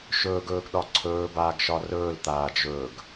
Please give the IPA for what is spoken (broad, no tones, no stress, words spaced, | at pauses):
ʃɵːɡɵːɡɗɒ ǀʰɵːbaːɡʃɒ rɵːlt̪aːd͡ʒɵːɡ